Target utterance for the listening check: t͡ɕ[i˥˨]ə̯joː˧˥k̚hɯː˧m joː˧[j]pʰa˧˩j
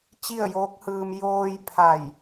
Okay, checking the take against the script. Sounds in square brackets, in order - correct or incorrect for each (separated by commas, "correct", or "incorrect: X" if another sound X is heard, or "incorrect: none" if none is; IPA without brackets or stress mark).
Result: correct, correct